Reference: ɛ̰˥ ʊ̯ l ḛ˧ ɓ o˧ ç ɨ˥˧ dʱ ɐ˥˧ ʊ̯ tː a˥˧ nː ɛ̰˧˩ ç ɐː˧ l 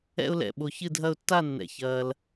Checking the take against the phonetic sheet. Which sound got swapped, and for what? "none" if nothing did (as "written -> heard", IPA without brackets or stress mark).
ḛ˧ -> ɛ̰˧